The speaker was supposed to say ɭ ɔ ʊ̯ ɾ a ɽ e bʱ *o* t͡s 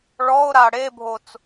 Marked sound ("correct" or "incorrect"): correct